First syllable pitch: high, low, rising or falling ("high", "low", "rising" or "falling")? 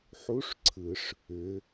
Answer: rising